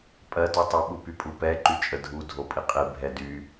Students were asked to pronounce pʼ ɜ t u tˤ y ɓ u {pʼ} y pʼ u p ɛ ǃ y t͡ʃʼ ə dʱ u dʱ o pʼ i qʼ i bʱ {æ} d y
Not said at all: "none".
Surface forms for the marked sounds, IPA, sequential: p, ɛ

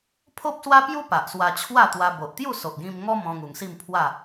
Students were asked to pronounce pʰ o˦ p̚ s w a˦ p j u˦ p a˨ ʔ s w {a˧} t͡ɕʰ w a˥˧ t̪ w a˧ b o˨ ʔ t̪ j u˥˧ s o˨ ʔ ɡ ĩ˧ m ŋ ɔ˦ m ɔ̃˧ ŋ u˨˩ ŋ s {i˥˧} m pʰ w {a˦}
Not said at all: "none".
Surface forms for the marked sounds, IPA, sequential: a˧, i˥˧, a˥˧

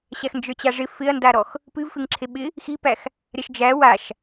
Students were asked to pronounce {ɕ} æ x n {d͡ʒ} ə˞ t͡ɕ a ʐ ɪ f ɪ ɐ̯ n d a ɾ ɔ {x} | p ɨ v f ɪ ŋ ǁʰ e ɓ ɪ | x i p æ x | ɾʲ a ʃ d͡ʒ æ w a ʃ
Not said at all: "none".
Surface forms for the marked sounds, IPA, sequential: ɕ, d͡ʒ, x

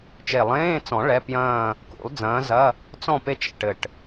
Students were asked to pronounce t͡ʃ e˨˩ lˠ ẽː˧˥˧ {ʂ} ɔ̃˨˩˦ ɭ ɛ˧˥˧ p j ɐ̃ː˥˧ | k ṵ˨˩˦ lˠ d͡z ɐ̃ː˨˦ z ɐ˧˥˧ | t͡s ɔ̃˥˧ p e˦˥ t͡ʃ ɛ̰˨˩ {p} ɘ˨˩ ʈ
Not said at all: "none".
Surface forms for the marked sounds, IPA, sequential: t͡s, ʈ

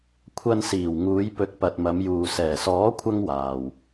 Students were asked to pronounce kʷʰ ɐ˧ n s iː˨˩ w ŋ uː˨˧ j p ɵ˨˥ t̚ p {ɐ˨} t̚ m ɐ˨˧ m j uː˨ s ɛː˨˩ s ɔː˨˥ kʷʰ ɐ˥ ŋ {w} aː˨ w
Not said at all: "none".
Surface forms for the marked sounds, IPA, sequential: ɐ˨, w

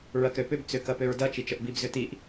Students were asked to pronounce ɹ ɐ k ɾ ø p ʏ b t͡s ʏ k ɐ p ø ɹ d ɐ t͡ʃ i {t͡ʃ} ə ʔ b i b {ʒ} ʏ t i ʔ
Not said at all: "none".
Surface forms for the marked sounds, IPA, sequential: t͡ʃ, z

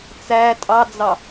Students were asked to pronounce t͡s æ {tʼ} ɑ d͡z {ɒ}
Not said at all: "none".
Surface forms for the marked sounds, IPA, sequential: tʼ, ɑ

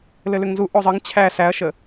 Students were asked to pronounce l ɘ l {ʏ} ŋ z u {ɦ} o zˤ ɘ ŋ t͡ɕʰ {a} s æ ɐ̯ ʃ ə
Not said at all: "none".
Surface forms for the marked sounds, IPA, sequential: ʏ, ʔ, æ

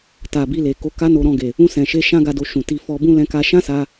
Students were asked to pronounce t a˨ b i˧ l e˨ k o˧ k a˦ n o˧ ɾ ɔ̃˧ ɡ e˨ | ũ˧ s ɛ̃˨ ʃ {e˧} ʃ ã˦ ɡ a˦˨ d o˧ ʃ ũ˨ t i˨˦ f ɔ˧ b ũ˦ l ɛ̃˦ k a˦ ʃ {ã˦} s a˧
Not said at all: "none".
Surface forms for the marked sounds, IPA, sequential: e˧, ã˦

